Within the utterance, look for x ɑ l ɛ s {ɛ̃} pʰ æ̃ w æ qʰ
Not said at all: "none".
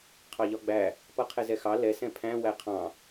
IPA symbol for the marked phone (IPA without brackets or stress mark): ɛ̃